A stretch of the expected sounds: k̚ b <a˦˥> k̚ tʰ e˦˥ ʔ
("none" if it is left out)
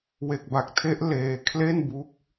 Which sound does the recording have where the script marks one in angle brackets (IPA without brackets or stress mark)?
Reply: a˨˩